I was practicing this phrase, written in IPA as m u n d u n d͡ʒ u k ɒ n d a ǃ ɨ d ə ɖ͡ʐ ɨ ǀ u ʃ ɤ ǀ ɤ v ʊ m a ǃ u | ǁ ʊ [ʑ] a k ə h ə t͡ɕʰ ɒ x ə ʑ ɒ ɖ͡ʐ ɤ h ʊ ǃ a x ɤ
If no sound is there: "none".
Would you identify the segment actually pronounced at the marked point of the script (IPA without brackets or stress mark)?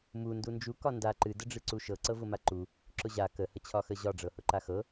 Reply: ʑ